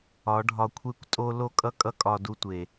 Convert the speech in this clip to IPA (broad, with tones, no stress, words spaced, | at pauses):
ɒ˨˦ɖʱɒ˧kʷʰe˦kʷtʼo˦ lo˦kʼʌ˦kʼʌ˦ kʼɒ˧du˧tʷe˨